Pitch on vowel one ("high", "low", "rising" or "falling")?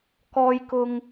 high